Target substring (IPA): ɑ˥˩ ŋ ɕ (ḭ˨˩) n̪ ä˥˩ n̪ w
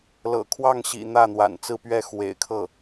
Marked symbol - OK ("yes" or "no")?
yes